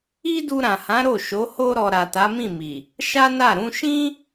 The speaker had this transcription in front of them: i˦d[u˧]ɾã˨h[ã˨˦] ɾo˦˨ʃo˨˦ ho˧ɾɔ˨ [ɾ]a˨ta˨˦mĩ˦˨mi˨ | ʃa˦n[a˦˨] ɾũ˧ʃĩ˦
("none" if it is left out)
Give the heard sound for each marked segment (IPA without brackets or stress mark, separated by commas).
u˧, ã˨˦, ɾ, a˦˨